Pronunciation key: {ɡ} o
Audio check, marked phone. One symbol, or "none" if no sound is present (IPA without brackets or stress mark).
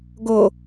ɡ